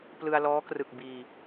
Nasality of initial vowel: oral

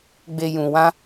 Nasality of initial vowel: oral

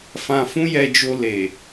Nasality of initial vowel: nasal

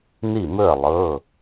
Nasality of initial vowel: oral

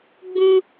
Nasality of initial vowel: nasal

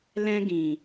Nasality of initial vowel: nasal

